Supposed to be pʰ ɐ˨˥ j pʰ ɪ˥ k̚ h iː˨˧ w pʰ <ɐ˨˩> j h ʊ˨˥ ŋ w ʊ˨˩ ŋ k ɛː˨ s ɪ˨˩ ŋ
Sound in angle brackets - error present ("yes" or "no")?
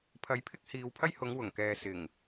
yes